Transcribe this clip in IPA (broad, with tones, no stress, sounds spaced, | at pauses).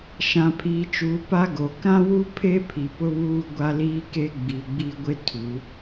ʃ ã˨ pʰ iː˨ t͡ʃ uː˨ p a˦ ɡ o˨ k ã˦ w u˦ pʰ e˦ pʰ i˨ p ʊ˦ β uː˦ ɡʷ a˦ l iː˦ k e˦ ɡ͡b i˨ ɡ͡b i˦ ɡʷ ɪ˦ tʰ u˨˦